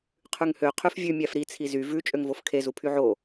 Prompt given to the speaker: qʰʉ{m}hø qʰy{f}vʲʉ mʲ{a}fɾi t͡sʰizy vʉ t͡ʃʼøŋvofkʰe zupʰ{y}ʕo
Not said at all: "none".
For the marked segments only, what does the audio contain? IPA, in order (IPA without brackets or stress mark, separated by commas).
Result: ŋ, f, æ, y